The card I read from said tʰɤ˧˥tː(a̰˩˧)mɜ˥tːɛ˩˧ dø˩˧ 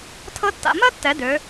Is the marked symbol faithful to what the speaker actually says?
yes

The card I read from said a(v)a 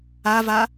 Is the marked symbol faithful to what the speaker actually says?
yes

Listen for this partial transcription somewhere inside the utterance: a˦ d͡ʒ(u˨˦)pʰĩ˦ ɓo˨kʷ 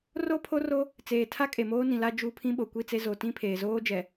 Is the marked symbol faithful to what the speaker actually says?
yes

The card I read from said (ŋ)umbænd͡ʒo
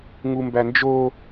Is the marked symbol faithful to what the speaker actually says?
yes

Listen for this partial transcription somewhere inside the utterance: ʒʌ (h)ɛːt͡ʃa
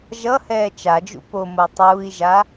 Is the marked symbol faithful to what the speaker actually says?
yes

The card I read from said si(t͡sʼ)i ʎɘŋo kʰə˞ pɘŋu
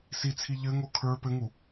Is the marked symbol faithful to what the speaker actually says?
no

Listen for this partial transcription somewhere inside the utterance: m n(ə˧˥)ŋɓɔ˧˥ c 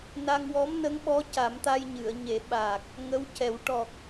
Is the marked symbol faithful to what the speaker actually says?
yes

